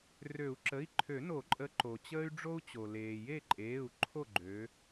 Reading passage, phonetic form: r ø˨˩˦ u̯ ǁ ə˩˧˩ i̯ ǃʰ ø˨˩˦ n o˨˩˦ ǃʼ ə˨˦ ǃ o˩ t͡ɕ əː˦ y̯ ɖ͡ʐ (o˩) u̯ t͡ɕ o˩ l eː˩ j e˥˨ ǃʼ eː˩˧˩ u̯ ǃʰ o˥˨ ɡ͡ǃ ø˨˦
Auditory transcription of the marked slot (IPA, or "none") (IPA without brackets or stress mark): o˦